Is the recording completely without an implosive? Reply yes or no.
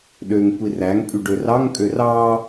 no